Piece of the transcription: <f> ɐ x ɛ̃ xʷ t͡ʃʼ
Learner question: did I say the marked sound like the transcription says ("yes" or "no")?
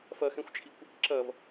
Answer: yes